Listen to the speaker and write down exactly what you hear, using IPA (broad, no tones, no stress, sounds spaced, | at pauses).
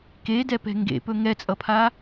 k e d ɛ p ɛ̤ ŋ ɡ ḛ p ɵ ŋ ɛ t͡sʼ ʌ pʰ a